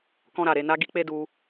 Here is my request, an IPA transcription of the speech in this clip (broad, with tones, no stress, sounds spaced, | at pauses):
k ɔ̃˧ ɾ a˨ ɾ e˧ n a˧ ɡ i˧ k͡p e˧ d u˧